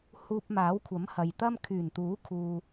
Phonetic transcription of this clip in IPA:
h uː˧ p̚ m aː˨˥ w kʷʰ ɐ˨˥ m h ɐ˨ j t̪ ɐ˥ m kʰ yː˨˩ n t̪ uː˨˥ kʰ uː˧

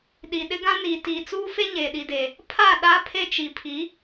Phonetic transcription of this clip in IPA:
ɗ i˨ ɗ ɪ˦ ɡ ã˦ n iː˨ t iː˨ t͡s uː˦ f e˦ ɲ e˨ ɗ i˨ d e˨ | pʰ a˦˨ ɗ a˦ pʰ e˦ t͡ʃ i˨ pʰ i˨˦

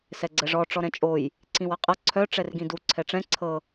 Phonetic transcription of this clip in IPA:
s ɛ ɡ͡ǀ ɛ ʐ ɔ ʈ͡ʂ ɔ ɾ ɛ̃ t͡ʃʼ o j | ǀ ĩ w ʌ qʼ ʌ ǀʰ œ ʈ͡ʂ ɛ r ɡ ĩ d u ǀʰ ɛ ʈ͡ʂ ɛ̃ ǀʰ ɤ

